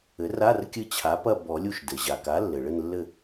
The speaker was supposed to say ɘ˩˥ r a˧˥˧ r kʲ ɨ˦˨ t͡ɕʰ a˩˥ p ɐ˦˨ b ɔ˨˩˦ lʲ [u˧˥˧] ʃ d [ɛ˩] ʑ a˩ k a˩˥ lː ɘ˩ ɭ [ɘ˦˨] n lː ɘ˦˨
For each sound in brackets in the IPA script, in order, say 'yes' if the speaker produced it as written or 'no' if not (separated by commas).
no, no, yes